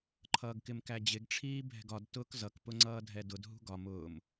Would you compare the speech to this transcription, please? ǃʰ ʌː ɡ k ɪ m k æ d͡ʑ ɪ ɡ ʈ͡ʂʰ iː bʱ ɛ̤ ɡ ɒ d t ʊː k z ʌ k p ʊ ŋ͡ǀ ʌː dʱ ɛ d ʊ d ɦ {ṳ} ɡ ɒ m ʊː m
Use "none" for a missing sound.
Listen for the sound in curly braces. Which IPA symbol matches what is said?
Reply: ṳ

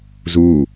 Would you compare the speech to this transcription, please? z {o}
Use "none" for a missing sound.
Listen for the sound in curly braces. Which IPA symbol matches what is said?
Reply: u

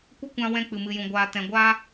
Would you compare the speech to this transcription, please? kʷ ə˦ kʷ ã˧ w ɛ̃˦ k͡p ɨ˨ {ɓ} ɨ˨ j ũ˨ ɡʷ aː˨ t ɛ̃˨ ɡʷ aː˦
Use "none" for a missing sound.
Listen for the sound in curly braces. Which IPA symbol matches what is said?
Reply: m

